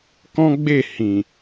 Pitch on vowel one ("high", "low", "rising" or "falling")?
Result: high